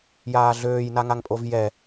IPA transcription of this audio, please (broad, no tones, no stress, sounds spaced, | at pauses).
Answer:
j aː ɮ øː j n a ŋ a ŋ pʼ o v j ɛ